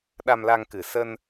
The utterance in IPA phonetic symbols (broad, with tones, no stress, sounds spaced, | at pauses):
ɗ a˧ m l a˧ ŋ k ɨ˨˩ s ə˧ n